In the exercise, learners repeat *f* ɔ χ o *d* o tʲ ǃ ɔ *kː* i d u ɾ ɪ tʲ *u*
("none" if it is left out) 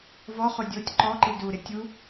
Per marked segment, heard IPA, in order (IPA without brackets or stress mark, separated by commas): v, dʲ, ǃ, u